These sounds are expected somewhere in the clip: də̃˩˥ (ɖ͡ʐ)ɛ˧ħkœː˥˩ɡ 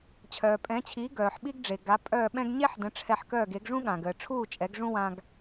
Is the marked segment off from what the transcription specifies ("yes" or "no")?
yes